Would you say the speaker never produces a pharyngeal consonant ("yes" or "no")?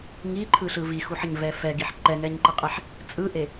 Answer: no